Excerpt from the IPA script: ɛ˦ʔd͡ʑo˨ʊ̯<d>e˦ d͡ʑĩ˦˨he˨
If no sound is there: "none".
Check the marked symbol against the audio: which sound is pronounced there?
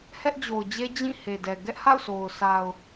d͡ʑ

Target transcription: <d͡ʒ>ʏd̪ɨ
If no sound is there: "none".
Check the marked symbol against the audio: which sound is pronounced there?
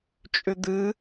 t͡ʃʼ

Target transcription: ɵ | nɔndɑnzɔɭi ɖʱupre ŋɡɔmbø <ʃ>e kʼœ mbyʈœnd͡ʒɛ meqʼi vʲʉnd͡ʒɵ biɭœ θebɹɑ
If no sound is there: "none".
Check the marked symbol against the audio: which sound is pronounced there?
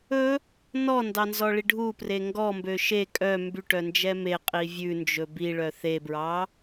ʃ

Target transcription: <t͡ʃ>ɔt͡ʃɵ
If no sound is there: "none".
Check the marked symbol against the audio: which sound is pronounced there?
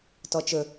t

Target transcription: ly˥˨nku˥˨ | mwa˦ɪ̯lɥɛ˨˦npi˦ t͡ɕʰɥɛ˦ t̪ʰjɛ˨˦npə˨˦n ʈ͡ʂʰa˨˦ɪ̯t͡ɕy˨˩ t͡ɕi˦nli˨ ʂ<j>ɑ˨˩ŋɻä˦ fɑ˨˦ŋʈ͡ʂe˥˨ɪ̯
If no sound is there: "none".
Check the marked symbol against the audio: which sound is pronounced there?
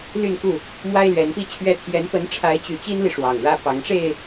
w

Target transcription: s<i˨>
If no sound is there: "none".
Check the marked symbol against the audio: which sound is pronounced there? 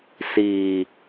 iː˨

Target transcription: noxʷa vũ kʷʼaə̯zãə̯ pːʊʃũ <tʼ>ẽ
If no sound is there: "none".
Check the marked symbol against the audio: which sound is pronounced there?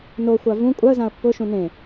n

